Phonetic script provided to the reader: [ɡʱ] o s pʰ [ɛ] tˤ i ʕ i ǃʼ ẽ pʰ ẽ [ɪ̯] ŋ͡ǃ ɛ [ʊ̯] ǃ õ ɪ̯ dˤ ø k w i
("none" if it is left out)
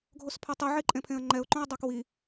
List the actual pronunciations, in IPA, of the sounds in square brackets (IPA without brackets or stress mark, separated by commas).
ɡʱ, ɛ, ə̯, ʊ̯